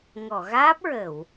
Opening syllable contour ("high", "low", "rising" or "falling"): low